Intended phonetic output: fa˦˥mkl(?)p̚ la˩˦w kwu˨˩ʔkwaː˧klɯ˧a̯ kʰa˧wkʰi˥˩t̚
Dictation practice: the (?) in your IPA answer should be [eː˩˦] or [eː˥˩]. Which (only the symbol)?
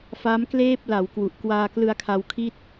eː˥˩